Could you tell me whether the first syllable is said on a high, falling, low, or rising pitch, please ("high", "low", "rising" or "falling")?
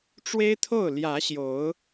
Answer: high